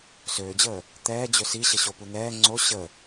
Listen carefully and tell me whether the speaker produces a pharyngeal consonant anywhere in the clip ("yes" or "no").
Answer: no